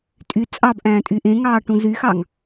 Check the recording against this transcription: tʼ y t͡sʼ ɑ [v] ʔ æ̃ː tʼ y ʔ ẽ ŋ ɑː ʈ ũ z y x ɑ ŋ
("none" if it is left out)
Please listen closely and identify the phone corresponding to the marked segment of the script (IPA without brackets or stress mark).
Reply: b